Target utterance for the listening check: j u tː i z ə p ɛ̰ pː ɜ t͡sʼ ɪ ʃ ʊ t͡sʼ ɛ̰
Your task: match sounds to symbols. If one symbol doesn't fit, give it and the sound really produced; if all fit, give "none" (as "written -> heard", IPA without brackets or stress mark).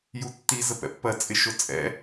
none